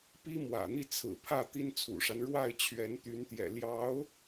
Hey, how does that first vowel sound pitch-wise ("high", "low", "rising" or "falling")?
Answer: high